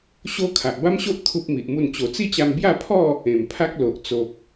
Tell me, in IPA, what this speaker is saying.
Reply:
ɕ o˦ kʰ a˨ ʔ b a˦ m ɕ o˦ ʔ t̪ʰ u˦ p̚ m i˨ ʔ m u˥˧ n t͡ɕ o˨˩ t͡s i˥˧ t͡ɕ a˧ m b j a˥˧ pʰ ɔ˥˧ | ẽ˨˩ m pʰ a˦ k̚ l o˨ ʔ t͡s o˨ k̚

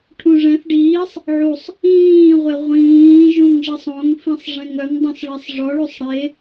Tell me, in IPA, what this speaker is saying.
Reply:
ʈʰ ũ ʐ ɛ̃ θ ɖ iː sˤ | ʕ u sˤ | ĩː ʁʷ e ʁʷ ĩː ʒ ũ ŋ ʒ i sˤ õ ŋ f ĩ sˤ ʐ ẽ ŋ œ ŋ dˤ õ s ɭ ɛ sˤ ʐ ɔ ɭ u sˤ ɽ e

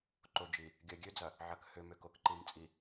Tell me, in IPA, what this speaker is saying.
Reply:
ǃ o˨ d͡ʒ i˨ | ɡʲ ɜ˨ ɡʲ ø˦ d͡z ɐ˨ | ʕ ɐ˨ k h ø˨ m ø˨ k o˨ k ǃ i˨ m t͡sʼ i˨

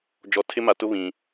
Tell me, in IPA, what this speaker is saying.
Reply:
d͡ʒ ɔ˨ tʰ ɪ˦ m a˨ t ʊ˦ β ĩ˨

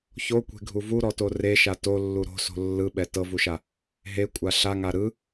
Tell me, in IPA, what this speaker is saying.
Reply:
ç o kʷ e̤ ɡʱ u v u ɾ ɔ t o r e ʃ a t o lː u ɾ o̤ s o̤ lː ɯ ɓ ɛ t ɤ v u ʃ a | ɦ e kʷʼ a ɬ a ŋ a ɾ ɯ

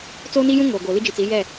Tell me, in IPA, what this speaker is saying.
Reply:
t͡s oː˦ n i˦ j ũ˦ ŋ oː˨ ɡ o˨ l i˦ d͡ʒ i˨ t͡s i˨˦ j ɛ˦˨

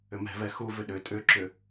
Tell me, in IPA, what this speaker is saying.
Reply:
ʏ m ɛ̤ v ɛ x u v ʏ ɗ ʏ tʼ ʏ ǁ ʏ

